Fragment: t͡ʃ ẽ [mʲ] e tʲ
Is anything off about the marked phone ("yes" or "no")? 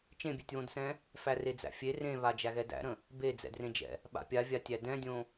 yes